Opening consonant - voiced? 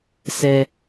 no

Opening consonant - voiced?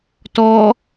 no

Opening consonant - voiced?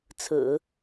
no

